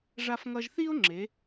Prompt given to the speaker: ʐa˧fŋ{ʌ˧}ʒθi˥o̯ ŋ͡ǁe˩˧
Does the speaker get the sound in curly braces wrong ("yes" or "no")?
no